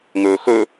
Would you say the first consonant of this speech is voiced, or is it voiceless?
voiced